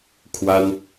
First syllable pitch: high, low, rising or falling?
high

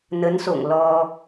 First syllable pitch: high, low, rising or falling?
rising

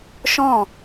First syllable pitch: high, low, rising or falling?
falling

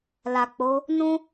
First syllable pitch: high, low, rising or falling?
low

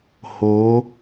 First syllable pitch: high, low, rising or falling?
rising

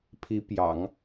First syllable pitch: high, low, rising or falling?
rising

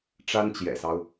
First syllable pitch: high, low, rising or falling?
high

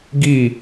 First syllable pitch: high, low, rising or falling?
falling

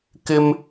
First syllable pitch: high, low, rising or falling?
high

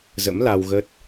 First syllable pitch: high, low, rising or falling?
rising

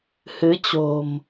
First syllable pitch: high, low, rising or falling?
rising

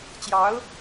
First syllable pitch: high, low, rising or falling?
rising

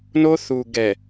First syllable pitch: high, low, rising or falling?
high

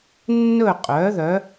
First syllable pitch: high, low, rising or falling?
falling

